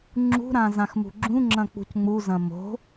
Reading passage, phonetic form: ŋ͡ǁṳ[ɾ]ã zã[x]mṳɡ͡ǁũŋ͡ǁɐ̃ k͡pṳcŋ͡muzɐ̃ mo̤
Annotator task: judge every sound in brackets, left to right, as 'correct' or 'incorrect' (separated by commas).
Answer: correct, correct